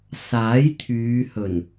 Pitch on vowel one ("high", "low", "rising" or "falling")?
rising